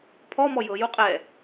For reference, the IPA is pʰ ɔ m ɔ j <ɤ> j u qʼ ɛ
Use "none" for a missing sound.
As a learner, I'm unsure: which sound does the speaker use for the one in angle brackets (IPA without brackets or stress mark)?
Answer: ɤ